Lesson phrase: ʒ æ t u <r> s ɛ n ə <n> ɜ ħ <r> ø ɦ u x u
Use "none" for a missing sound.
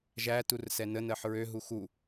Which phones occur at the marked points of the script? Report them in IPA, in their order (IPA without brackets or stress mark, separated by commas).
r, n, ɹ